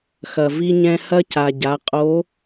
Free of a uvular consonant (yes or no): no